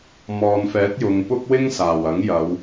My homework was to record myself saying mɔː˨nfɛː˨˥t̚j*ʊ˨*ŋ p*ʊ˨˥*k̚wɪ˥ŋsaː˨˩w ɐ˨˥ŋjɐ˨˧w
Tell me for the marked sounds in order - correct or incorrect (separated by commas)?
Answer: correct, incorrect